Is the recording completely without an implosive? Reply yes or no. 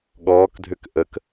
no